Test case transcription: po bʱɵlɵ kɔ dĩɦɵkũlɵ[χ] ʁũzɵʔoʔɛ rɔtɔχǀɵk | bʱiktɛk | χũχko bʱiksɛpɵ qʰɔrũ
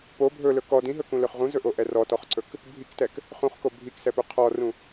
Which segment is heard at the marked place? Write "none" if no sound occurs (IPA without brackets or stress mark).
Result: χ